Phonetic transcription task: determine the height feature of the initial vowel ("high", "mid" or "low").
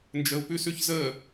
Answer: mid